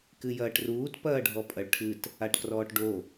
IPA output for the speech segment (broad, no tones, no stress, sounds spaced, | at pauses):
k ɨ j ɐː ʈ r uː t p ɐː ɖʱ ɔ pʼ ɐ ɭ ʈʰ ɨ t | a ʈ k r ɔː ʈ ɖ o